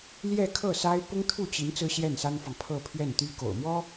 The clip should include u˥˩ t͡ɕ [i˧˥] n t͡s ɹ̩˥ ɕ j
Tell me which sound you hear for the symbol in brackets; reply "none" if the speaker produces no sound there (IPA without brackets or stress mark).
i˧˥